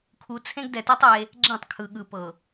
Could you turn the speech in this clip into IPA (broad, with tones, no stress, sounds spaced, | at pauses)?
kʰ u˨ t͡sʰ ẽ˦ ɡ d ɛ˨ t i˦ tˤ e˦ | ɡ͡ǁ ẽ˦˨ tˤ kʰ ɯ˨ ɠ ɯ˨ p ɤ˨